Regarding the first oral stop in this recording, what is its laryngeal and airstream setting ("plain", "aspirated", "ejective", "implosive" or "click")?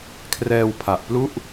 aspirated